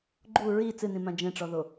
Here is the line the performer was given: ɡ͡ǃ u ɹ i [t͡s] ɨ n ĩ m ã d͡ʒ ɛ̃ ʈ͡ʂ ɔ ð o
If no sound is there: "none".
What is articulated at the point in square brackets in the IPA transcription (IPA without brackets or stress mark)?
t͡s